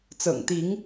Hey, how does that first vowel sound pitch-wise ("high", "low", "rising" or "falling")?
low